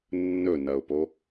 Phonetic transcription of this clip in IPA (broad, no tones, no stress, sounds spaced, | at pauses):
nː ɵ n ɐ ʊ̯ p o